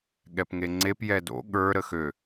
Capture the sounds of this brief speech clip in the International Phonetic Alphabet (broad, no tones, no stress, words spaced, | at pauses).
ɠɛpŋeŋ͡ǀep jɛdo̰ ɠə˞ ɾəxø